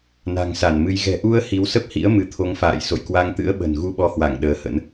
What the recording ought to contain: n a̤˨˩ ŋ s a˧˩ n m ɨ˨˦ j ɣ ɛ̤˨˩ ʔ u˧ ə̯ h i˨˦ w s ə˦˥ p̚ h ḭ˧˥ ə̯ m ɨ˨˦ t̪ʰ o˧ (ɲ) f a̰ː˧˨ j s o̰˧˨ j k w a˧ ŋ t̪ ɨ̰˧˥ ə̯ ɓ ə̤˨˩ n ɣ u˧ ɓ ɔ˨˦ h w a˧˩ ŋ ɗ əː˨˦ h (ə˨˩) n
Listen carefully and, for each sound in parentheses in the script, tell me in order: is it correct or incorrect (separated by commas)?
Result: incorrect, incorrect